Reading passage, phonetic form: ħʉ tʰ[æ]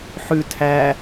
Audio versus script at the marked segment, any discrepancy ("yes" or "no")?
no